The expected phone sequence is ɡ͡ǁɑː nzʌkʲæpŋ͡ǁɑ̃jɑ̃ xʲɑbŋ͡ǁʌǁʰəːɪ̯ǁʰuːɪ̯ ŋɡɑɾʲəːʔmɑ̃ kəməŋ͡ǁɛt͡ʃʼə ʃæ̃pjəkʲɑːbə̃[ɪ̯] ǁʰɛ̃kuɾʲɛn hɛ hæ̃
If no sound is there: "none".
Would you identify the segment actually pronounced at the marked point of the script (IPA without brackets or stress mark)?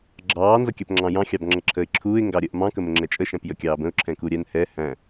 ʊ̯